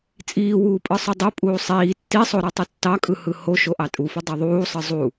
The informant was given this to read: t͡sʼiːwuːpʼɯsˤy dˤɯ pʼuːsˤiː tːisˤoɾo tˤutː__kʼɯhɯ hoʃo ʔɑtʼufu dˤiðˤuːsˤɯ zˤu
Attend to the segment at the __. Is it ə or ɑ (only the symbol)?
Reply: ɑ